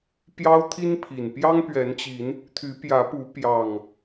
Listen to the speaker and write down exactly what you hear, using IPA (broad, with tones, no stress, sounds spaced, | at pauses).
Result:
p j ɑ˦ ʊ̯ t̪ʰ i˦ n pʰ i˨˩ n p j ɑ˦ ŋ p ɥ ɛ˨˦ n t͡ɕ i˨˦ n | t̪ʰ y˨˦ p j ä˨˦ p u˨˦ p j ɑ˨˩ ŋ